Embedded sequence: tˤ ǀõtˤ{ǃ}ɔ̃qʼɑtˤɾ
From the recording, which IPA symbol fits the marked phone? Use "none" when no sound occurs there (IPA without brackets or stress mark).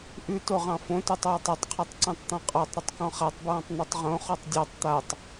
t̪